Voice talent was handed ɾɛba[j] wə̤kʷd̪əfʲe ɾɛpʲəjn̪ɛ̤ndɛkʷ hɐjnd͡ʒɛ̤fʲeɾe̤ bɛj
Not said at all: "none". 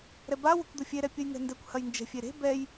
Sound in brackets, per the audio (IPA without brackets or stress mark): none